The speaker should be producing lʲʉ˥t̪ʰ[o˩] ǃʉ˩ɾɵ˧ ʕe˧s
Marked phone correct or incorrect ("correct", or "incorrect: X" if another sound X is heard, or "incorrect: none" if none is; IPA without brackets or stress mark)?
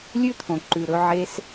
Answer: incorrect: õ˩